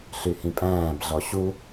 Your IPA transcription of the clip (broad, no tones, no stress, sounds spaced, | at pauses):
ɬ y h ĩ pʼ æ̃ː b ɮ ɔ ɕ u